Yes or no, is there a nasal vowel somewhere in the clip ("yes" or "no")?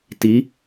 no